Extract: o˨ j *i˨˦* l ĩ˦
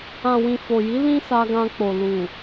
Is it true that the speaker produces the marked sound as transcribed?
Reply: yes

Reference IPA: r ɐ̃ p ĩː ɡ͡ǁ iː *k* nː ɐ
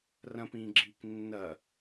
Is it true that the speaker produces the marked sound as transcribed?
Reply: yes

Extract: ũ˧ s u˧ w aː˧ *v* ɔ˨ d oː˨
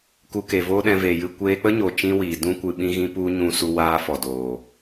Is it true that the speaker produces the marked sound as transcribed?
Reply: no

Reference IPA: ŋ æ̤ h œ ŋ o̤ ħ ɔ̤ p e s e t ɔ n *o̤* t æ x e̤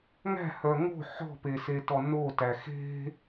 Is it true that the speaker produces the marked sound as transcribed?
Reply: no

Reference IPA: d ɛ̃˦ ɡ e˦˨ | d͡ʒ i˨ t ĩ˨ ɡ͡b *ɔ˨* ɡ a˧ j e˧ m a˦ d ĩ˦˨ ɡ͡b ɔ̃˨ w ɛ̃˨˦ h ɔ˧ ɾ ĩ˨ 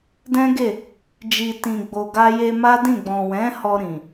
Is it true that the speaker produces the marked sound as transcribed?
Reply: no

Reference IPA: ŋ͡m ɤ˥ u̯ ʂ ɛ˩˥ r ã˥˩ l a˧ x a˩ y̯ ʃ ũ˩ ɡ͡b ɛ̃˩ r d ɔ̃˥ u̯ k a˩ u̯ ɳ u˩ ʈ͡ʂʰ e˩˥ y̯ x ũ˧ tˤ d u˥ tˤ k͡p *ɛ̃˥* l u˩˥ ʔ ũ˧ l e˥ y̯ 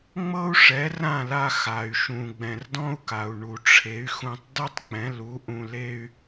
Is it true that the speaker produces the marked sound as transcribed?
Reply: no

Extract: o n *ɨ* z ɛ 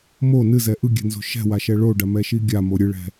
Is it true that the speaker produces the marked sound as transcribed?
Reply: yes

